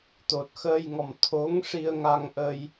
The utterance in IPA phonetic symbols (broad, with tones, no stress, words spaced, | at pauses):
t̪o˨˩t̚xəː˧jŋɔ˨˩m t̪ʰo˧˥ŋʂi˧ə̯ŋa˧ŋʔə˧j